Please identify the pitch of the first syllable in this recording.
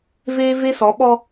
high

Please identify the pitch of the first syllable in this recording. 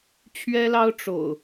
high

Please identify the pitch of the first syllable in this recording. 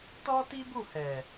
high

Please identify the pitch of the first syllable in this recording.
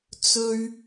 high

